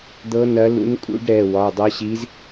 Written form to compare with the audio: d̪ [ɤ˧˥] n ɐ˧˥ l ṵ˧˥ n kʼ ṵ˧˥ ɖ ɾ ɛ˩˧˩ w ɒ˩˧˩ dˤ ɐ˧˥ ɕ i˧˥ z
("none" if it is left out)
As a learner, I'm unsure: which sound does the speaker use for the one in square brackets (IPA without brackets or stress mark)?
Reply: ɤ˧˥